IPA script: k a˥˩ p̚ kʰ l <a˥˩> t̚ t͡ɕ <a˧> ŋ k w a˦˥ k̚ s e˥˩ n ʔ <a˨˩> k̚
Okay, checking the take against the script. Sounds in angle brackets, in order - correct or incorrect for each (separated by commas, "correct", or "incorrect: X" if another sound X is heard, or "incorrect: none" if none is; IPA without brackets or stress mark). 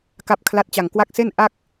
correct, correct, incorrect: a˥˩